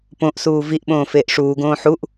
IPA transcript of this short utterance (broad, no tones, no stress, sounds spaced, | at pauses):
p õ ʔ s uː v i ʔ ɓ õː f eː ʔ ʂ uː ɡ õː ħ u ʔ